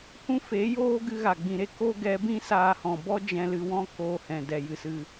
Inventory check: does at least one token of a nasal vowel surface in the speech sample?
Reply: yes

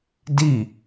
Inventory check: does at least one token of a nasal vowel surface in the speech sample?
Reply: no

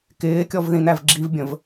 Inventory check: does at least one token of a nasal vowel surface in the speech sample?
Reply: yes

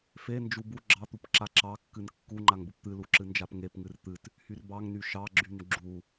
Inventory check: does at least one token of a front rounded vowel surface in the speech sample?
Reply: yes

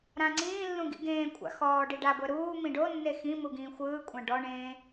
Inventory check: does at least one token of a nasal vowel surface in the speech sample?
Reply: yes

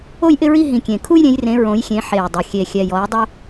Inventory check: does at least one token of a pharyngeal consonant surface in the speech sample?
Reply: yes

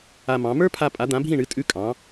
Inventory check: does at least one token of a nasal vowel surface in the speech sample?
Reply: yes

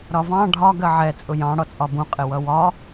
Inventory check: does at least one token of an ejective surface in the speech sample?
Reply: yes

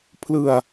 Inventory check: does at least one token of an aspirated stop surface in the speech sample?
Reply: yes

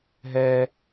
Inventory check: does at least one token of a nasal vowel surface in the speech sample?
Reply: no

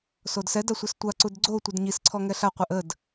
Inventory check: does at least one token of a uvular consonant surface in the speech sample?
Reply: yes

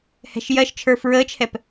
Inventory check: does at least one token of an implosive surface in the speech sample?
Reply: no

